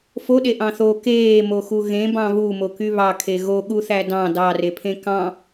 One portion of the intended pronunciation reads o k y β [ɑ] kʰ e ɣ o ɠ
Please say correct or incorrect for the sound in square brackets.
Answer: correct